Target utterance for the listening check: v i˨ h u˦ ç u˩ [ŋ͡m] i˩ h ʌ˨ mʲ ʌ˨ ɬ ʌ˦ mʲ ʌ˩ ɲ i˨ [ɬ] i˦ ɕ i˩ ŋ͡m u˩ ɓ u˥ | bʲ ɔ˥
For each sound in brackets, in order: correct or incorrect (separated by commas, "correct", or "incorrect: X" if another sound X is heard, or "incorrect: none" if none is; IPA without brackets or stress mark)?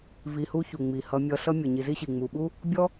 correct, incorrect: z